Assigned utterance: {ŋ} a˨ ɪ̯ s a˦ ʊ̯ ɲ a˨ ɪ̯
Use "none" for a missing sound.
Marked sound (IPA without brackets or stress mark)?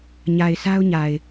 ɲ